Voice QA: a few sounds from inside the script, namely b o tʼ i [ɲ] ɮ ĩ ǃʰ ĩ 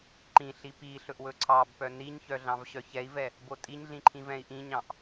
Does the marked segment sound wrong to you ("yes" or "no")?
no